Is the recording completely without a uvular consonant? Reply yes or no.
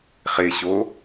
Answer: no